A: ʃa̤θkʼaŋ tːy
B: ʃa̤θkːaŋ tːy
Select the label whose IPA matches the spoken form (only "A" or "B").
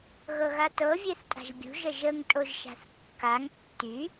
B